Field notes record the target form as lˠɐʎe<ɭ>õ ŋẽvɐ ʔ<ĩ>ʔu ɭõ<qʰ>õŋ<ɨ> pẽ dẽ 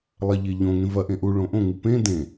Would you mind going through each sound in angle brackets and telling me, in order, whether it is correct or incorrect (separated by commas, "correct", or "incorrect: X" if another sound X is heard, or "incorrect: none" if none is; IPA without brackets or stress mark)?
incorrect: ʎ, incorrect: ẽ, incorrect: ʔ, correct